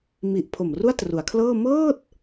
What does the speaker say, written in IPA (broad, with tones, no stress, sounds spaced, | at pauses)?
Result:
m i˨˩ ʔ pʰ o˨˩ m r u˥˩ a̯ t r u˩˦ a̯ kʰ l ɤː˥˩ m ɤː˥˩ t̚